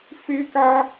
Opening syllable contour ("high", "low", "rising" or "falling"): high